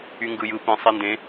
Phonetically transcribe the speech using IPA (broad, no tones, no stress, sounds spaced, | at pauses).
y ŋ ɡ ɯ j ɯ p ĩ sˤ e n d ẽ